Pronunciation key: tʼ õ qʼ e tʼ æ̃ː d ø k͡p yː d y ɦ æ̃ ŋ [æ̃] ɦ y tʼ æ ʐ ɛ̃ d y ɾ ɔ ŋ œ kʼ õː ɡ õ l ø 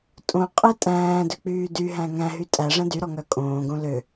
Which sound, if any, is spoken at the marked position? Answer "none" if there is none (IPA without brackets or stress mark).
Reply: æ̃